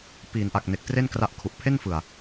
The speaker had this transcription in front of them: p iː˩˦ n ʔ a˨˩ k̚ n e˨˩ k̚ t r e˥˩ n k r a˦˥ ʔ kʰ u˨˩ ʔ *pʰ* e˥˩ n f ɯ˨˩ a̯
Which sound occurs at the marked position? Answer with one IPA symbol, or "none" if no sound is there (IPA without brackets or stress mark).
pʰ